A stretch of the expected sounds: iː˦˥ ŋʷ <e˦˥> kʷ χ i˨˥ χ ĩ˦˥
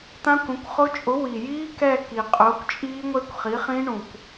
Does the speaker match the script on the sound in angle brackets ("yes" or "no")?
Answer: yes